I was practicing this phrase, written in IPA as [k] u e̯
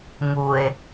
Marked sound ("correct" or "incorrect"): incorrect